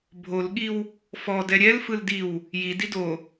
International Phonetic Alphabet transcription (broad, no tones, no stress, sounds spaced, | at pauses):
bʱ o l ɠ i w | f ɔ d ɛ ɾʲ ɛ l f ɯ l d i w | j i d i d o